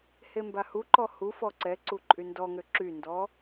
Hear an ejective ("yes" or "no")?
yes